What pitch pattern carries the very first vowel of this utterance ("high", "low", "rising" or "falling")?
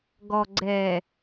low